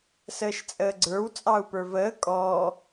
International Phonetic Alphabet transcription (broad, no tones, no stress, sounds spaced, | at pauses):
s əː ʃ t͡sʼ əː ɡ͡ǀ ə˞ w t͡sʼ ɑ u̯ p ə˞ v əː kʼ ɔ